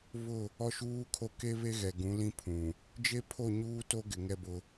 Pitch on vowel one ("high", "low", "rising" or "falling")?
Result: falling